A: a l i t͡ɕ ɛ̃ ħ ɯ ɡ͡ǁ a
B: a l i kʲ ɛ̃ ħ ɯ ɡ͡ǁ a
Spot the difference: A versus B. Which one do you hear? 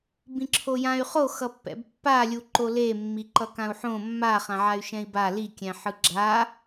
B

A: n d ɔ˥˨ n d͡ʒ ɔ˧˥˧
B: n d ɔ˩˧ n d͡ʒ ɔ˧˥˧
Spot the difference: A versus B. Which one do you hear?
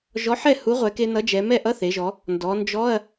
B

